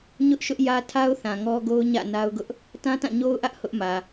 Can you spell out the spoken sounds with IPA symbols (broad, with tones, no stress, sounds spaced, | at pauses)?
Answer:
ɲ ʊ˦ ʔ ʃ ʊ˦ ʔ j ä˦ tʰ a˦ ʊ̯ θ ã˨ ŋ ɔ˦ ɡ o˦ ʊ̯ ɲ ä̰˦˨ n a˦ ʊ̯ ɡ ʊ˦ ʔ | t ã˦ t ã˦˨ ɲ o˦ ʊ̯ ʔ ä˦ ʔ h ʊ˦ ʔ m ä˨